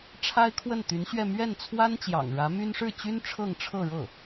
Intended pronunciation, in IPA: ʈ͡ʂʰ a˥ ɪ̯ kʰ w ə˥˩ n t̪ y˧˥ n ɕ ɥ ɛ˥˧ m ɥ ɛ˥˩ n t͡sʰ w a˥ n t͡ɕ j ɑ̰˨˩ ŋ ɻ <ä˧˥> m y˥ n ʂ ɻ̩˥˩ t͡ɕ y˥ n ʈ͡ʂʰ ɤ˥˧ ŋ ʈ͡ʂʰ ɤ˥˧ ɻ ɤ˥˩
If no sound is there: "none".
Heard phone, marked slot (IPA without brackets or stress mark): ä˧˥